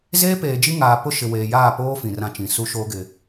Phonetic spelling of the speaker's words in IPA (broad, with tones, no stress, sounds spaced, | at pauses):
z eː˦ p eː˨ d͡ʒ i˦ ŋ aː˨ p ʊ˦ ʃ ɪ˨ w eː˨ j aː˦˨ p oː˦ f ĩ˨ r ã˦ t͡ʃ ĩ˨ s u˦ ʃ oː˦ ɡ ɪ˨